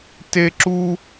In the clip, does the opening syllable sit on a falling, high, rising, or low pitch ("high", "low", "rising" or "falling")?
high